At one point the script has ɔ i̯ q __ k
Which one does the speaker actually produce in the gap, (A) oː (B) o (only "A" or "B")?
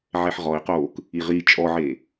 A